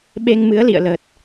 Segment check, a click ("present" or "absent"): absent